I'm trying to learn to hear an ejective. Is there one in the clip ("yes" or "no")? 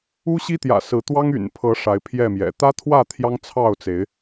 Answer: no